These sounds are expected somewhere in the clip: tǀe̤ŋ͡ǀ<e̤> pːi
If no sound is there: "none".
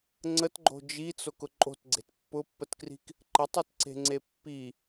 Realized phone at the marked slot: e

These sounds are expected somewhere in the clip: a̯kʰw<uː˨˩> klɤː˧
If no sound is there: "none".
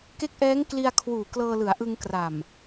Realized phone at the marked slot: uː˨˩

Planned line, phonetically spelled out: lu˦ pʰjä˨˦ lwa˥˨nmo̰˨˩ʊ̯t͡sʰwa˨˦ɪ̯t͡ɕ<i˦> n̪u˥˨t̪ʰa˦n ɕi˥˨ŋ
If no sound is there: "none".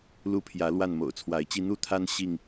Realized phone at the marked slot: i˦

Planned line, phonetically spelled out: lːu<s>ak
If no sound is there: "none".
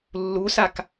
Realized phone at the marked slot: s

